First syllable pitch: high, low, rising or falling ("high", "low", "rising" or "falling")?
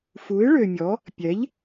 rising